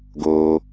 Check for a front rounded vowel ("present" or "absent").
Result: absent